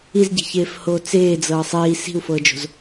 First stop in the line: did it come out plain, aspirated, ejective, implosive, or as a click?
plain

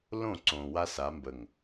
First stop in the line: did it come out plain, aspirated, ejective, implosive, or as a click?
click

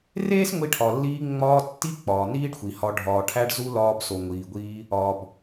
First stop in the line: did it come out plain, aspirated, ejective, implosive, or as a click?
aspirated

